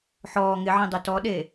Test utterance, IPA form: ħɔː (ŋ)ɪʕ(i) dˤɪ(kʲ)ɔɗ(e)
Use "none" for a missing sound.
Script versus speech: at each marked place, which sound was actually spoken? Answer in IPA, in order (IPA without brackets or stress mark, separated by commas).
ŋ, ĩ, t, e